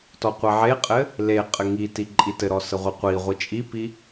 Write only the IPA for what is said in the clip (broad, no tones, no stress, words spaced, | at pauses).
tɔqʷeʕeqʼɘ | le qʼɘŋiti ǃʼitɘɾɔ səʁʷiqʷiʁʷi t͡ʃʼipi